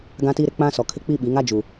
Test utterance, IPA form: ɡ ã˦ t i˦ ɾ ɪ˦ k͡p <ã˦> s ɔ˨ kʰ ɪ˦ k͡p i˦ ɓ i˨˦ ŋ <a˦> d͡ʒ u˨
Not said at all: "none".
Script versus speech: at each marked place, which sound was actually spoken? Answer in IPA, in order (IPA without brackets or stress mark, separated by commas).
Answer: ã˦, a˦